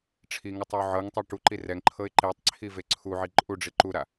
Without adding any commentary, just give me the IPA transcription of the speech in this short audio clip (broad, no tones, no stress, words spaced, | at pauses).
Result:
ʈ͡ʂʰiŋɯtˤ iʊ̯ʕɤŋtˤɛ ʈuǃi rɛŋǃʰɤɪ̯ ǃetˤǀʰi veǀʰuʕi ǃʼuɖ͡ʐi ǃuɾa